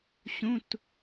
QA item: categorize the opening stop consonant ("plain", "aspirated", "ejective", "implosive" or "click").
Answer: plain